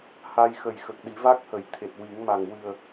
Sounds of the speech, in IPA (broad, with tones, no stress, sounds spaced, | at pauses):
h a˧ j x ə˨˩ j x ə˨˩ k̚ ɗ i˨˩˦ v a˦˥ k̚ h ə˨˩˦ j t̪ʰ e˨˩ t̚ w i˨˩˦ ŋ m a˨˩ ŋ w ɨ˨˩ ə̯